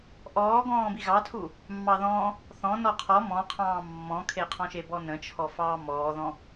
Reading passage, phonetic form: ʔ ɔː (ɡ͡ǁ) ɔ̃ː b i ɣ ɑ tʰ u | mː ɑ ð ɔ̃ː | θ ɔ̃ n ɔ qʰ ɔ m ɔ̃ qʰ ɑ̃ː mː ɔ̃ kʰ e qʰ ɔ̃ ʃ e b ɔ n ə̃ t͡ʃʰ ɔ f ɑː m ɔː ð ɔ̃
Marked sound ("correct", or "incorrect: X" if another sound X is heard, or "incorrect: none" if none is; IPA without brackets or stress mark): incorrect: ɡ